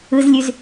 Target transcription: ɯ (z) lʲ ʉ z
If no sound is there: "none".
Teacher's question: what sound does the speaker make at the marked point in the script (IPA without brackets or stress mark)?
z